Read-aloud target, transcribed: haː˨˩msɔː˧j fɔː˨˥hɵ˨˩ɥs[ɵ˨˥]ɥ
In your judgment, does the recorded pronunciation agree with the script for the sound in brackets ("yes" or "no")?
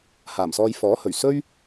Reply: no